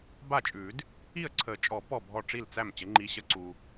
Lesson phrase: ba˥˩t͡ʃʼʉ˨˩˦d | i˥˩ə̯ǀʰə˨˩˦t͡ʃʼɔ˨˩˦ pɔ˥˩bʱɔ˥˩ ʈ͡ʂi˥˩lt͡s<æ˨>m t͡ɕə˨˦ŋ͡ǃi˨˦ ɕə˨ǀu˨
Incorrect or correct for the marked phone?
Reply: incorrect: æ˥˩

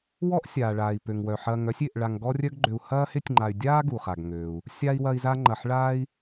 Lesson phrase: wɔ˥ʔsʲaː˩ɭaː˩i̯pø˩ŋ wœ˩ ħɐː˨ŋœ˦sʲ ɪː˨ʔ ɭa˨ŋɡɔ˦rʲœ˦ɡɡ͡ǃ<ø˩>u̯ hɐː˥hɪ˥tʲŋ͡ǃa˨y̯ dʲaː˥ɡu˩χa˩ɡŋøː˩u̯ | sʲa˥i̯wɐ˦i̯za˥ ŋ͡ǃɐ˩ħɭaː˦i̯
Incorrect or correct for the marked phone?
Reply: incorrect: ø˨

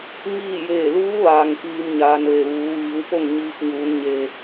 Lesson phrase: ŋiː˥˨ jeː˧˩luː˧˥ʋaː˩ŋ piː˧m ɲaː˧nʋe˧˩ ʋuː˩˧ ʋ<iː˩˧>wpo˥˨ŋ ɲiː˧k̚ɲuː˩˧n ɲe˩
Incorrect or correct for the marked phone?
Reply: correct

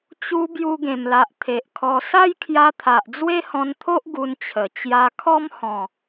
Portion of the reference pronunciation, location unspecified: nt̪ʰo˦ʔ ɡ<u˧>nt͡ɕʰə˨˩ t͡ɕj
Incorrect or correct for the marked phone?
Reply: correct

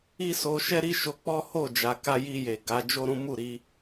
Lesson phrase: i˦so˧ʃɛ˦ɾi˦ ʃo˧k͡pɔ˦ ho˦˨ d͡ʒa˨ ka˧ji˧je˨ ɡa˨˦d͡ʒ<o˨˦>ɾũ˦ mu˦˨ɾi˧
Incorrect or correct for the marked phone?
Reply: incorrect: o˦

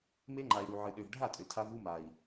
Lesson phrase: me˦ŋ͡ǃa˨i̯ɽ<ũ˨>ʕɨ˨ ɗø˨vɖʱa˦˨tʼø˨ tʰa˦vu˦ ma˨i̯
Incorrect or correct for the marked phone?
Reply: incorrect: u˨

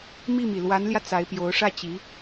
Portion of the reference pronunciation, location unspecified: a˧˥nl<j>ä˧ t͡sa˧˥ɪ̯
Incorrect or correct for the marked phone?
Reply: correct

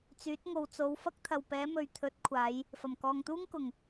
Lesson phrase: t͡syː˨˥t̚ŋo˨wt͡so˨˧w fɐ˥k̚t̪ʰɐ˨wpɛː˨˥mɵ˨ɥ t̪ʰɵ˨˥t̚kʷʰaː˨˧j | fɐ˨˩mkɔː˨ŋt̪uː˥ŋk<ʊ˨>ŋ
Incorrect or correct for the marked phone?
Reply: incorrect: ʊ˨˩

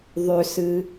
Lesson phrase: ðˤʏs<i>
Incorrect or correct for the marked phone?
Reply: incorrect: ɨ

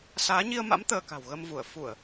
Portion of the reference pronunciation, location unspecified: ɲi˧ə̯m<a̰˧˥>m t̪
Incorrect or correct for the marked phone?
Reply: correct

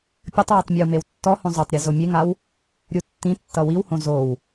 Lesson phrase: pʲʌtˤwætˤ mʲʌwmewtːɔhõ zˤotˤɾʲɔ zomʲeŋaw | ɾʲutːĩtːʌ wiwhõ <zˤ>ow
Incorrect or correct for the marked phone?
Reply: incorrect: z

